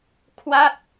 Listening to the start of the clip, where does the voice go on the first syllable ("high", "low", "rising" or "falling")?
falling